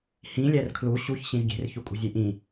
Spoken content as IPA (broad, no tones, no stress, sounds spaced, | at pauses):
h ĩ lʲ æ r kʰ l u ɕ u ç ɕ ĩ z ɡʲ e̤ r ç u kʼ ṳ zʲ e ʔ ĩ